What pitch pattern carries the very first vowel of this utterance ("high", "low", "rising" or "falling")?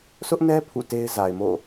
high